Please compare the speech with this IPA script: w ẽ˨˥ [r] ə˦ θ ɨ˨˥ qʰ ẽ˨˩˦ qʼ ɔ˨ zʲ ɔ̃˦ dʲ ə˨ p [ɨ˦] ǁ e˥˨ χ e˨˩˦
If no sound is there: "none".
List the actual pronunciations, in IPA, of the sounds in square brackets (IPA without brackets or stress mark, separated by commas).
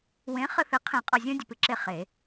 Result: χ, ɨ˦